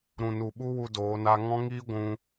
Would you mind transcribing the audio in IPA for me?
ɾũ˨nu˨ ɓu˦wu˧ doː˨˦na˦ ŋɔ̃˦ŋiː˦ ɡʷũ˦

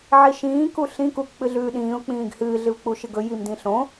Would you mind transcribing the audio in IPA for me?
ʕiʃĩː kuɬĩ kuk k͡pɨɮʉːɗĩːʊ̯ k͡pĩːɡhɨː ɮɨvk͡puʃɨɡɵ jimdĩɬõ

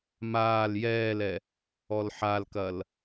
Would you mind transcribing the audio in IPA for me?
maːl jɛːlɛ | ɔlħalkɐl

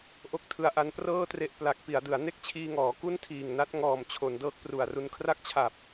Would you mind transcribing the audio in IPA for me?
ʔo˥˩k̚tʰɯ˦˥a̯ ʔa˧nprɤː˥˩tre˦˥ʔ pla˨˩k̚ pi˩˦a̯dɯ˩˦a̯ ne˥˩k̚t͡ɕʰiː˧ŋɔː˩˦ ku˥˩ntʰiː˨˩ŋna˦˥t̚ŋɔː˨˩m t͡ɕʰo˩˦n dɤː˦˥k̚pru˨˩a̯ru˧n kʰra˥˩k̚t͡ɕʰa˨˩p̚

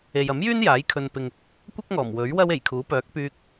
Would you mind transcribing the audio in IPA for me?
e˨jɐ˨˥mjyː˥n jaː˨˥j kʰɵ˧npɪ˧ŋ | kʷɐ˥k̚ŋɔː˨˩mwɵ˨˥ɥ wɐ˥w e˨˩jkʰuː˨˥pœː˨˥k̚ pyː˧k̚

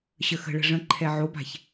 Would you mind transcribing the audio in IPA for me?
ɕəxə̤ ɭə̤ʐə̃ǃʰɛ ʕoba̤ç

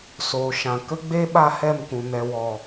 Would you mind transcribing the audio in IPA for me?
soː˨ʃã˨ kə˦ɡ͡be˦ ɓa˦hɛ˦˨mkũ˨ nɛ˨wɔ˨

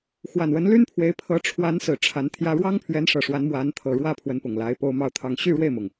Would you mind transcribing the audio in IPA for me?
xwa˨˩nwə˧˥nly˥npʰwe˧˥ɪ̯ pʰɤ˧˥ʈ͡ʂʰwa˧˥n sɹ̩˨˩ ʈ͡ʂʰa˧˥nt̪ʰjä˥ ɻwɑ˥ŋpʰɥɛ˧˥nʂɤ˨˩ ʂwa˧˥n mwa˧˥nt̪ʰɤ˨˩ɻwä˥˩ pʰwə˧˥npʊ˨˩ŋla˧˥ɪ̯ po˥ʊ̯mɑ˥˧ʊ̯t̪ʰɑ˥˧ŋ ɕy˥˧ɻwe˥˩ɪ̯mʊ˩ŋ

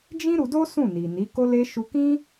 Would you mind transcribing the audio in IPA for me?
d͡ʒĩ˦ɾu˧do˦ sũ˦˨ni˨ni˨˦ ko˧le˧ʃu˧kĩ˦

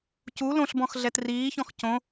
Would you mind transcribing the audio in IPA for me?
cu lõɬbɔ̃xɮɛt riːçɔ̃x cõ

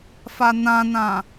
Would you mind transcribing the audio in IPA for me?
fanãnã

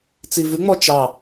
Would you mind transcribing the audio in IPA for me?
t͡sivʉŋ͡mɔ t͡ʃɑ

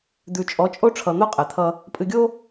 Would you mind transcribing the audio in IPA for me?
d̪ʉ˨t͡ʃʼɔ˨˦t͡ʃʼo˦ʈ͡ʂʰʌ˨ n̪o˦qʼɛ˨t̪ʰʌ˦ | pʼɨ˨ɡʲo˦

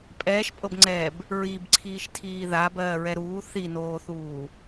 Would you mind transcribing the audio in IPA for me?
pʼɛːʃpʼɤbŋ͡ǀɛːb | ɹibǀʰiːʃtʰiː ðabɜːɹɛ ɾuː θinoːθuː

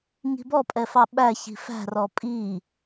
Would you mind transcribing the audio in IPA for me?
ŋi̤bɔ pʼɛfɑɓæ çi̤fæ̤ rɔpʼi

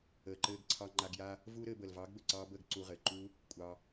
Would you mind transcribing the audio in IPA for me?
əː˨ǃɘː˧ɡǀʰɑ˧ ŋ͡ǃa˧ɡja˦ | vuː˦ɾɘː˧bəː˨l vɑː˨˦ɡbɘ˨ǀɑː˧bəː˦˨ɡ ǀu˧ʁɘː˨ ǃu˦ | kʷʼɑ˧

